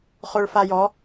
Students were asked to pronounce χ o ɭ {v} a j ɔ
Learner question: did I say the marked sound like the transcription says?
no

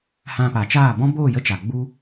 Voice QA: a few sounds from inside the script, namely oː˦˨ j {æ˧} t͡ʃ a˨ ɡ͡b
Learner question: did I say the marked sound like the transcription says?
no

